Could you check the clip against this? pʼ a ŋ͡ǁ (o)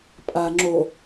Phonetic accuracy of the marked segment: correct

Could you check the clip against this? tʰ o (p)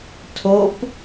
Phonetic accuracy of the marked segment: correct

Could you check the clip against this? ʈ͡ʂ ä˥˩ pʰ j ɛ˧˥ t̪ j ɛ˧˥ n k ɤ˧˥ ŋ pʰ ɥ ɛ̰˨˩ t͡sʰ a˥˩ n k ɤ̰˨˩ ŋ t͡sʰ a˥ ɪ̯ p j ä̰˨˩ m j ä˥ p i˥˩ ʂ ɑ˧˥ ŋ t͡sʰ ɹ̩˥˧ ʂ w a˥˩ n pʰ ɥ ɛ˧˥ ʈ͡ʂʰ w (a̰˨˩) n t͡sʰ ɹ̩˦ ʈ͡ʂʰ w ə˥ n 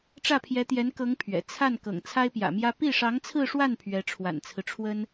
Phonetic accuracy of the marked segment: correct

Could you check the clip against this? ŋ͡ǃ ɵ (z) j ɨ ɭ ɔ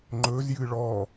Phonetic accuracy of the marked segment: correct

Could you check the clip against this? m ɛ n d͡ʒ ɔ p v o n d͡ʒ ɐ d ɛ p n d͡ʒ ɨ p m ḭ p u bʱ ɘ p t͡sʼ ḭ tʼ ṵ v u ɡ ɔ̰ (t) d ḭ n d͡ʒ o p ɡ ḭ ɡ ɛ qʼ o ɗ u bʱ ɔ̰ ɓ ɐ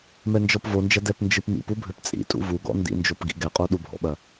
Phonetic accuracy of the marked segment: incorrect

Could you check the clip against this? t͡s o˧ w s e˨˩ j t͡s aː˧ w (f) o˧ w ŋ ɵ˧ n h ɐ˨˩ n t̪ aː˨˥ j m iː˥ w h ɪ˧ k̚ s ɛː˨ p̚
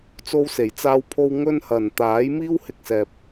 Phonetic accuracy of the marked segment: incorrect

